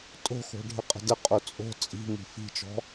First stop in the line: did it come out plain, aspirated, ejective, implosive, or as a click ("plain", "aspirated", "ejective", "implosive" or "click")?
ejective